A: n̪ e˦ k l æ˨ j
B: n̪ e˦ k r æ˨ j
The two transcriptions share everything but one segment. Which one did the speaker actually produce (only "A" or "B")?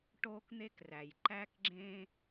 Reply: B